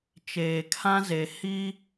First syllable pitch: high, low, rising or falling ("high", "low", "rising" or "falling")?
low